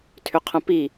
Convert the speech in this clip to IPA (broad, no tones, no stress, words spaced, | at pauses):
tʰʏqʰə̃pi